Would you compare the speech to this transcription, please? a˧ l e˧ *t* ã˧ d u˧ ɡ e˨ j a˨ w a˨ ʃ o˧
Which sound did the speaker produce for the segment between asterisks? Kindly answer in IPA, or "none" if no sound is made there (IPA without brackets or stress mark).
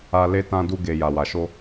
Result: t